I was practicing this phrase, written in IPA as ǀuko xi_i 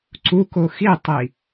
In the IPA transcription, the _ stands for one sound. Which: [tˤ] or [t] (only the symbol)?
tˤ